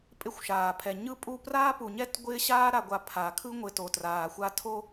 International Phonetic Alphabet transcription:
pʼɪ˦˨xʷʃaː˨ pʰɛ˨ɲɯ˦pʼu˦ praː˦pu˨ɲɛ˦t ɡʷɪː˦ɕaː˦ ɾa˨ɡʷa˨ pʰa˨kʰɯ˦ ŋʷɪ˨ to˨traː˨xʷa˦ tʰo˦

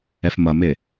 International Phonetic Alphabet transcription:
ɛfmʌmɪ

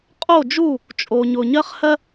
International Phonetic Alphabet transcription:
qʼo˥˧d͡ʒu˥˧ | t͡ʃʼo˧ ɲʊ˧ ɲɜ˥χhɜ˥

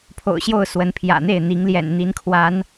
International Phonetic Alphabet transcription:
pʰo̰˨˩ʊ̯ɕjo˥˨ʊ̯ swə˨˦npʰjä̰˨˩n̪e˥˨ɪ̯ n̪i˨˦ŋljɛ̰˨˩nn̪i˨˦nkʰwa˨˦n

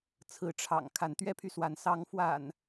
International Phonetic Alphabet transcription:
t͡sʰɹ̩˨˦ʈ͡ʂʰɑ̰˨˩ŋ kʰa˨˦nt̪ɥɛ˦pʰy˨swa˨˦n sɑ˨˦ŋfwa̰˨˩n

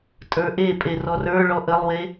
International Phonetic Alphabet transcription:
tʼə˞ʔepʼe rɔrə˞ɭɔ ʔəlˠwe

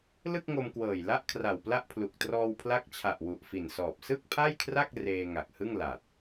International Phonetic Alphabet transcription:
lɯ˥˩k̚ŋo˧mkwɤː˨˩j la˥˩ʔkʰra˨˩wpla˥˩ʔpʰlu˨˩k̚ trɔː˧wpʰla˦˥k̚t͡ɕʰa˨˩ʔ wu˨˩ʔfi˨˩nsɔː˨˩p̚ sɯ˥˩k̚pʰa˥˩jkʰra˥˩k̚ reː˧ ŋa˨˩k̚hɯ˥˩ŋ la˨˩t̚

